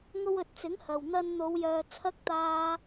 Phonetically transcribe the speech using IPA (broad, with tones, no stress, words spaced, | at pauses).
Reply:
ŋo˧wɵ˨t̚t͡sɪ˨˥ŋ hɐ˨w n̪ɐ˧nn̪o˨˧w jœː˨ t͡sʰɐ˥k̚t̪aː˥